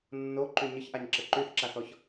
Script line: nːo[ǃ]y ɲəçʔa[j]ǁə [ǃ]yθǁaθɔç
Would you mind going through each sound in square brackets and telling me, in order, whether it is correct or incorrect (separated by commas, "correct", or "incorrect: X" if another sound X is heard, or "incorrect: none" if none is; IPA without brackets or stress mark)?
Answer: correct, incorrect: ɲ, correct